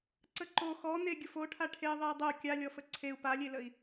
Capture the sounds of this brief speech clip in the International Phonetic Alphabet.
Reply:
ǀ ə ǃ o x ɔ n e ɡʲ ʊ f o ʈʰ a ʈʰ e ðˤ e i̯ dˤ ə u̯ kʲ a lʲ ɔ f ə ǀʰ e u̯ p a lʲ e l ə i̯

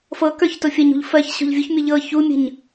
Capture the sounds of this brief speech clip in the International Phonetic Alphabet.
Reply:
f ɤ k ə˞ ç t o fʲ ɐ ɲ ṳ ʎ f ɜ ç ɕ o̤ ʎ vʲ u ç mʲ ɤ ʎ ɤ ç u mʲ ə̤ ɲ

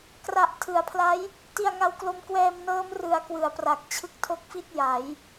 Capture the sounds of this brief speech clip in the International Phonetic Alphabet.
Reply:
k r a˨˩ ʔ tʰ ɯ˩˦ a̯ pʰ l a˦˥ j | t i˧ a̯ ŋ a˧ w k l o˧ m k w ɛː˧ m n ɤː˦˥ m r ɯ˧ a̯ k w ɯ˩˦ a̯ p r a˨˩ k̚ t͡ɕʰ ɯ˦˥ k̚ tʰ o˦˥ k̚ f i˥˩ t̚ j a˩˦ j

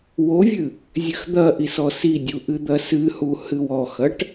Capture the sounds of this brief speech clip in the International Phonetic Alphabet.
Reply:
w o vʲ ɨ | zʲ ɘ x d̪ ɐ ʔ i s ɔ s i dʲ u ʔ ɨ d̪ ɐ s ɨ h u h ɨ w ɔ x ɐ ʈ

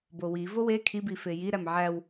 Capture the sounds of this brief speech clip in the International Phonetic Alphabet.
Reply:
b o w i v o w e kʰ i b i f e j i ɾ æ m ʕ æ w

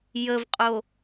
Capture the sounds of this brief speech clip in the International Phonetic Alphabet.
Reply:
j ə v qʼ o

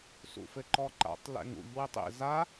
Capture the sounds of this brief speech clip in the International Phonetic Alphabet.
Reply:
s ṵ f ɘ ǃ ɔ ǃ a̰ tˤ l ɛ̰ ŋ ṵ ʎ w e tˤ ḛ z a

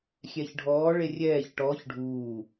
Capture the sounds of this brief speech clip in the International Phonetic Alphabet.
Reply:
xʲ ɛ ç ɖʱ ɔː ɭ e rʲ ɛː ç ʈ ɔː ç ɖʱ uː

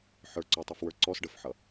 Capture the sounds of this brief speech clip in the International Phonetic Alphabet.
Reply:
ħ ə˞ ǀ ɔ tˤ ʌ f w ə˞ ǀ ɔ s ɖ ə f ħ ʌ

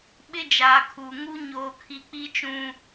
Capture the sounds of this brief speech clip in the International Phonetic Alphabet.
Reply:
ɓ ɪ˦ d͡ʒ aː˨ kʰ uː˨ ŋ u˦ ɲ oː˦ kʰ i˦ k͡p i˦ t͡ʃ ũ˦

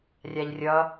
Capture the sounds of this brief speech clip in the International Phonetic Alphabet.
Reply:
rʲ a ʎ rʲ ʌ

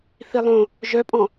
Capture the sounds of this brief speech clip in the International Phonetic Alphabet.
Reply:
θ i lˠ õ | ʒ œ pʼ ɔ̃

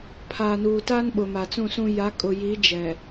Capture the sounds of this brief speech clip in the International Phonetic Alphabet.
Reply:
pʰ aː˨ n uː˨ t a˦ n ɓ ʊ˨ m a˨ t͡s ũ˦˨ s ũ˦ j a˨˦ kʼ ʊ˨ j i˨˦ d͡ʒ ɛ˨

